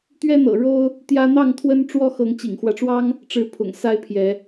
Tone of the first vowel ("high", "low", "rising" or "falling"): high